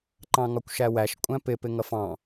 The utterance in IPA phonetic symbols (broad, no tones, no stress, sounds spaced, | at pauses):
ǃ ɑ̃ ŋ ɒ kʷ ʃ æ w æ ʃ kʷʼ æ̃ p ɪ p ɪ ŋ ʌ f ɑ̃